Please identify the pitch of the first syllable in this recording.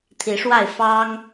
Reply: rising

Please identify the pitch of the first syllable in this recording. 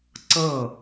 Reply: falling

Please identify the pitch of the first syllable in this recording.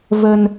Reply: low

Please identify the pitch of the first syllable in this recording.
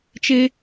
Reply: high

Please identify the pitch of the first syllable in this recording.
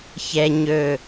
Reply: high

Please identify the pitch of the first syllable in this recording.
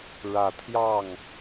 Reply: low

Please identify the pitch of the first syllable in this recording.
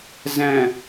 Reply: low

